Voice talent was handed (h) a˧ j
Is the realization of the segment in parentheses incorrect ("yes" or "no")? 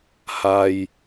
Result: no